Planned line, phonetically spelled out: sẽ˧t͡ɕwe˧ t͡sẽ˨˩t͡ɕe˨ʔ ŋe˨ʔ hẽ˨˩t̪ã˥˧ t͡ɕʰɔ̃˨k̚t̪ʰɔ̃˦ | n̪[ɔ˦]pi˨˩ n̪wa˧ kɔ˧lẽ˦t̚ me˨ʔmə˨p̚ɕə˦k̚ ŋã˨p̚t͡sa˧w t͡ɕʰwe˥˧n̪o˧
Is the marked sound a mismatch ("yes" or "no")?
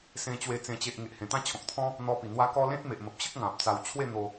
yes